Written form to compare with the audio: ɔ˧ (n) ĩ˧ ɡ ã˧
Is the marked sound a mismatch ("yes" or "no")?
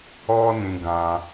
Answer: no